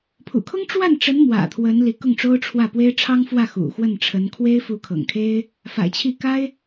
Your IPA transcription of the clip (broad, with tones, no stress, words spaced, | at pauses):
pʰṵ˨˩kʰʊ˥ŋʈ͡ʂwa˥˩nʈ͡ʂə˧˥n mwä̰˨˩t̪ʰwə˧˥n li˧˥kʊ˥˩ŋʈ͡ʂo˥ʊ̯ ʈ͡ʂʰwä˥˩pwe˥ɪ̯ ʈ͡ʂʰɑ˥ŋfwä˥˩ xṵ˨˩xwə˥˩nʈ͡ʂʰə˧˥n kʰwe˥ɪ̯ fu˧˥kʰɤ̰˨˩ŋkʰe˥ɪ̯ | fa̰˨˩ɪ̯t͡ɕʰi˥˩ ka˥ɪ̯